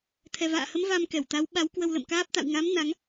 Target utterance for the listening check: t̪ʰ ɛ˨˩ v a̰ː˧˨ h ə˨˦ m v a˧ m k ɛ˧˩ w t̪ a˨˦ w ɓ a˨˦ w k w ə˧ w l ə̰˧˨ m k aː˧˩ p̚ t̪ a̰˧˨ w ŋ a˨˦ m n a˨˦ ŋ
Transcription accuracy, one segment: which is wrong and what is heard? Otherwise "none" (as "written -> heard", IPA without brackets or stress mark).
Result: aː˧˩ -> aː˦˥